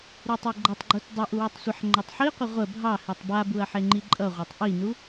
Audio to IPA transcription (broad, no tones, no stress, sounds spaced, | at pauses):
ɾ ɯ tˤ e ɡ͡ǃ ʌ tˤ ɡ͡ǃ u t dˤ u ʔ u w u tˤ sʷ ə ħ ŋ͡ǃ a tˤ ħ i qʷ ə ʁʷ ə bʱ ɑ h e tˤ b a b u ɐ̯ ħ e ŋ͡ǃ i ǃʼ ʌ ʁʷ ɑ tˤ ʔ i n u